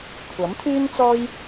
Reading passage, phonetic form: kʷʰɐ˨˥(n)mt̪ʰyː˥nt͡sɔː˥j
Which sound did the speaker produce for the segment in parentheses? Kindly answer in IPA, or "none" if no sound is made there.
none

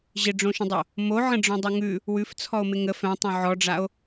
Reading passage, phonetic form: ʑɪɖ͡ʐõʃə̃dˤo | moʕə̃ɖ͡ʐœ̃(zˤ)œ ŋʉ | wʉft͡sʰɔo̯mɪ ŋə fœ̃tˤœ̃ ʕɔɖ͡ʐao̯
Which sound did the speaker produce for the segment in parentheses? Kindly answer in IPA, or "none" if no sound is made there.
dˤ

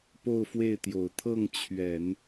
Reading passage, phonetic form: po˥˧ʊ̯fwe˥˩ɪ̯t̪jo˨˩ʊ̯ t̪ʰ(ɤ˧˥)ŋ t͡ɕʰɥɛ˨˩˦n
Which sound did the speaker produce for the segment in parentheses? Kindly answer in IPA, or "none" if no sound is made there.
ɤ˥˩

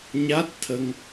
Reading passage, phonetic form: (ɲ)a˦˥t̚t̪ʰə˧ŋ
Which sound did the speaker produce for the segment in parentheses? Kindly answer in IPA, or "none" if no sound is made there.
ɲ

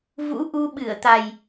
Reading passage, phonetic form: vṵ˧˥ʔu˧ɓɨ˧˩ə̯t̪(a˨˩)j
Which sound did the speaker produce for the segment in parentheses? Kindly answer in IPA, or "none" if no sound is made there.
a˨˩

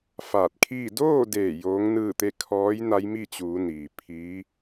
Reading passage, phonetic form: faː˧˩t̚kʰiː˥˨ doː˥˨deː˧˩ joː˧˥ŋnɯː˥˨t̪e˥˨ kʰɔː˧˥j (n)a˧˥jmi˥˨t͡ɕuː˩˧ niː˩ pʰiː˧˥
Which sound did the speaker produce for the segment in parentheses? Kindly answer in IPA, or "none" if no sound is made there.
n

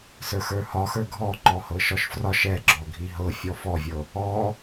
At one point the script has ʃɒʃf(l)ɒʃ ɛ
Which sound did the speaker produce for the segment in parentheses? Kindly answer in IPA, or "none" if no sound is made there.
r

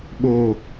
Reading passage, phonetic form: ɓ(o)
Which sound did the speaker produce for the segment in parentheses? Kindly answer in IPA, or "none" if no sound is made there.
o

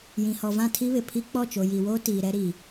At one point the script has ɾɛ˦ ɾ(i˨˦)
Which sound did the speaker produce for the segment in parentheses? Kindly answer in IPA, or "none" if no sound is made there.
i˨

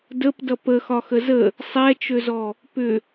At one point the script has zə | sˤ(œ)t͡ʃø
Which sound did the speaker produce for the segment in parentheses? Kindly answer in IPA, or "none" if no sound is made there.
ɛ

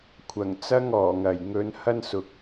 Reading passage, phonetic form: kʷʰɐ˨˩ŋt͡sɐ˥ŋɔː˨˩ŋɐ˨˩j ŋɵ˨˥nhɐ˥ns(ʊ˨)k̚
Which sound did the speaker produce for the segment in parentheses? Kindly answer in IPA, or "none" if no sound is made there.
ʊ˨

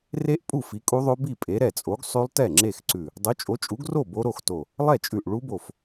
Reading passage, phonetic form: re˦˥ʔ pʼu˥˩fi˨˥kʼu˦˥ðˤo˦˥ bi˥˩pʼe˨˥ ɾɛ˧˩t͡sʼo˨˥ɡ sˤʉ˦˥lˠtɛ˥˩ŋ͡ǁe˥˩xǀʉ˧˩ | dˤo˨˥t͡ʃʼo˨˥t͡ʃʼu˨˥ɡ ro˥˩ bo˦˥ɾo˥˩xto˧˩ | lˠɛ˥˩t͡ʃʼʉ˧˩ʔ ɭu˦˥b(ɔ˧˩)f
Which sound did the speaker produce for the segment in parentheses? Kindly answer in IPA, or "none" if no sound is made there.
o˧˩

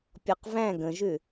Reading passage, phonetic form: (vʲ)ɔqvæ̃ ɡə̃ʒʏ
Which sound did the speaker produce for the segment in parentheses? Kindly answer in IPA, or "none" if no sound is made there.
pʲ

